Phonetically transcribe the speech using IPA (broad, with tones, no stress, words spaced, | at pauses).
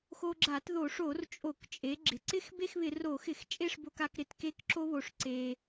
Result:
xo˧ɡ͡ǁa˧˩˧tðo˧˩˧ʂo˧˩˧r t͡ʃʼo˧˩˧kt͡ʃʼe˩˧ɡ͡ǁɪ˩ǀɪ˥˧x be˥˧xβɪ˧˩˧ro˧˩˧xɪ˧˩˧x t͡ʃʼe˥˧ʂbo˧ka˧k ɾɪ˩tke˧kǁo˧βo˩ʂ ǀe˩